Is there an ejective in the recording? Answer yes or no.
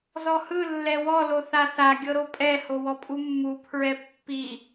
yes